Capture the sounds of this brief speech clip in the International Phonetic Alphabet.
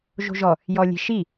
ʒ o̤ ʒ ɔ | j ɔ lʲ e̤ ʃ i

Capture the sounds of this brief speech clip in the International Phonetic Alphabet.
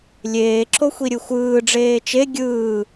lʲ eː ǁ o xʷ i ɾʲ ɯ xʷ ɯː ɖ͡ʐ eː t͡ʃ e ɡʲ ɯː

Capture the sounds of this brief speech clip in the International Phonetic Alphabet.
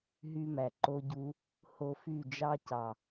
ɦ y˧ m æ˨ ǃ o˧ ɟ u˧ | h o˧ f y˦˨ d͡ʒ ɑ˧ c ɑ˨

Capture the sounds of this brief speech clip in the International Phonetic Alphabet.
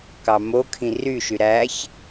k ɑ m o kʰ ĩ r y ʃ y ɾ æ ç

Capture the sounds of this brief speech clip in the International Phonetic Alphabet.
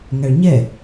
ŋ æ ɭ ɲ ɛ

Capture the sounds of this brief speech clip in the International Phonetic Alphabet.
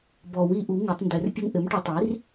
b ɔ˨˩˦ w i˩˥ ʔ u˩˥ ŋ ɘ˨˩˦ tˤ n d ɘ˨˩˦ r pʲ ə˦ ŋ ʔ ɘ˩˥ m ʈ ə˨˩˦ tˤ i˩˥ r

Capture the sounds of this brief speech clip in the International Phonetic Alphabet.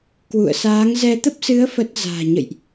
k w ṵ˧˨ ə̯ s aː˨˦ ŋ z ɛ˧ t̪ ə˦˥ p̚ s ɨ˨˦ ə̯ f ə˦˥ t̚ z a̤ː˨˩ ɲ ə̰˧˨ j ʔ

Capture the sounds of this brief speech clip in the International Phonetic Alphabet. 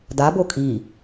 d a b o kʼ i

